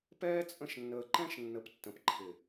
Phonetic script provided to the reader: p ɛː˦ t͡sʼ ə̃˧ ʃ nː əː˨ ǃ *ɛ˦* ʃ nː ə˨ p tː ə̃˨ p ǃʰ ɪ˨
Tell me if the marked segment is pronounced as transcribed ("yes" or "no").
no